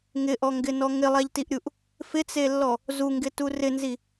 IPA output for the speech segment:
ŋ ɪ ʔ ɔ ŋ ɡ ɪ n ɔ ŋ ɪ lˠ a ʎ t i ʔ ɾʲ u ʔ | f ɪ t͡s e lː ɔ | z u ŋ ɡ ɪ t u r ɪ n z i

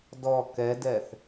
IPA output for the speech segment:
d ɔ k ɛ d ɛ θ

